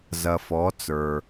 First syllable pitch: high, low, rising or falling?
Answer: low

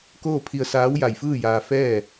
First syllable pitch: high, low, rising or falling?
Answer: falling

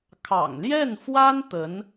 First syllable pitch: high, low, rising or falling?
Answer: low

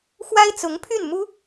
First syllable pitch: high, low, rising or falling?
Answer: high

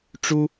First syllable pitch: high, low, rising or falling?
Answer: high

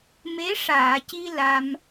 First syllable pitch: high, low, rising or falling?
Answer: rising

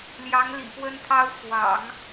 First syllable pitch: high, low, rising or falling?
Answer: rising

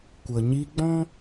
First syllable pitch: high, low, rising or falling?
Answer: low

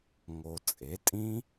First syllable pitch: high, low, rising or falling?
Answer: low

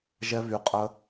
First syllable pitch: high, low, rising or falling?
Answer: high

